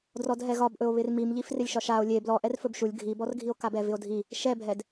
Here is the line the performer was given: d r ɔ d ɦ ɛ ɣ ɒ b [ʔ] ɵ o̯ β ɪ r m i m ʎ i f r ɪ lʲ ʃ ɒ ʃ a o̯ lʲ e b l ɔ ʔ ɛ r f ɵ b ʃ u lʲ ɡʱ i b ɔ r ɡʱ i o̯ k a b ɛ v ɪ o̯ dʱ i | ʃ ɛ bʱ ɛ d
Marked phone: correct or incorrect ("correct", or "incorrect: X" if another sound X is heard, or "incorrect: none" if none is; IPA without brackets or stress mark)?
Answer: correct